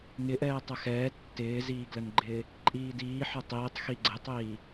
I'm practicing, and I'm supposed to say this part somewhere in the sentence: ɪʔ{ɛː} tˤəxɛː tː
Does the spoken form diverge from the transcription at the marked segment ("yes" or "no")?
no